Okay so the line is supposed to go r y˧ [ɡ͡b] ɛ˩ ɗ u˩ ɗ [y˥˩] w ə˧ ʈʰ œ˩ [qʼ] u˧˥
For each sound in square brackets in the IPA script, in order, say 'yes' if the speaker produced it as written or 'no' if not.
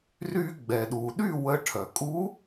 yes, yes, no

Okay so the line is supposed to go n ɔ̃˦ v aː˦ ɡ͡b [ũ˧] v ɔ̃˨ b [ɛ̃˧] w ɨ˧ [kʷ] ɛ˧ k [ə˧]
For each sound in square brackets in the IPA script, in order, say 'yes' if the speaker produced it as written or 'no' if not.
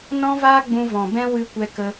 yes, yes, yes, yes

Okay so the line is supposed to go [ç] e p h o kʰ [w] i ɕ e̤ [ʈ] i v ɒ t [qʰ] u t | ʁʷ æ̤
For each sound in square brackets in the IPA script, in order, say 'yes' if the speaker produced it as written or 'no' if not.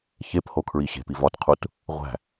yes, no, no, yes

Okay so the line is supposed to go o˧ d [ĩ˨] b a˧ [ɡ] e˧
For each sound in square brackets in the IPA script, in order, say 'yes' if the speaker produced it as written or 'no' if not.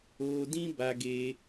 no, yes

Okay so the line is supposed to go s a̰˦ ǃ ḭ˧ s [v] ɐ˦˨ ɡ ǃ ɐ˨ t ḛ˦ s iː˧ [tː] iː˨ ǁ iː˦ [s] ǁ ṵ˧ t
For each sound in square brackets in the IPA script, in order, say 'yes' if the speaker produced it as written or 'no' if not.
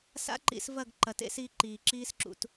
yes, no, yes

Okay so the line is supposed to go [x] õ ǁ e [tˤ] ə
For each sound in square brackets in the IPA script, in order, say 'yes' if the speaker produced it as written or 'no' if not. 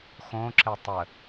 yes, yes

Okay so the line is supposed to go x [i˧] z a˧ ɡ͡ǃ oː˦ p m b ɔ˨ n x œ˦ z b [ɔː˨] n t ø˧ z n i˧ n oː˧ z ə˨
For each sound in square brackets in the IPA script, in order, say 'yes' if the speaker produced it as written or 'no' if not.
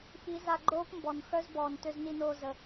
no, yes

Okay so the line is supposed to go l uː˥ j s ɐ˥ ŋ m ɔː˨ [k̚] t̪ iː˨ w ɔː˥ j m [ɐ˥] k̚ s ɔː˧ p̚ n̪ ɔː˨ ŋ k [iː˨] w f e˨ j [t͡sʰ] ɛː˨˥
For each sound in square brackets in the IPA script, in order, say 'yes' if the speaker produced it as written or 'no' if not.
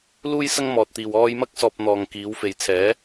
no, yes, no, yes

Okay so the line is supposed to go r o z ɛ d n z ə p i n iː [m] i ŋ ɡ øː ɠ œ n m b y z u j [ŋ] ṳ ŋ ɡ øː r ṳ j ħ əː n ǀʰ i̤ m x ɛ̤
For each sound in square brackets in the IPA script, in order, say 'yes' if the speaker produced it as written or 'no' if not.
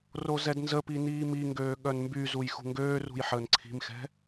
yes, no

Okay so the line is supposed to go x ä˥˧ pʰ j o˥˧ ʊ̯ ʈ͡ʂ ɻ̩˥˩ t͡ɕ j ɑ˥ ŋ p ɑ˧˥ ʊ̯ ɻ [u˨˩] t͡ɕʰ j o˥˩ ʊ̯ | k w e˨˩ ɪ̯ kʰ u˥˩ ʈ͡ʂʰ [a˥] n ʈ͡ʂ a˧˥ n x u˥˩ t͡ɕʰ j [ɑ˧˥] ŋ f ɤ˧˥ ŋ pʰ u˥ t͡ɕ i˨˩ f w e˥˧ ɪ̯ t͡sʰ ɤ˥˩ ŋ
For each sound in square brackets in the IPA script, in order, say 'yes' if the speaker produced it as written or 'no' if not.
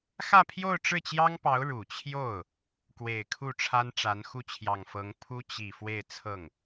yes, yes, no

